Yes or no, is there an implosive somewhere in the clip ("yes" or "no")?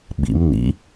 yes